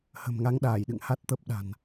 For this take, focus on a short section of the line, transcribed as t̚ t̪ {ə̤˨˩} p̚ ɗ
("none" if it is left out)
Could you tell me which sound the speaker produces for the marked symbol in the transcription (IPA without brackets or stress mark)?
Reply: ə˦˥